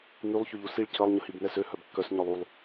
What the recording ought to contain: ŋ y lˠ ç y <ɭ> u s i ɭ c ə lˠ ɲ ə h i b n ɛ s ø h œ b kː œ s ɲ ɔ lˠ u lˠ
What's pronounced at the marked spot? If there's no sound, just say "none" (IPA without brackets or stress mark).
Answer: ʎ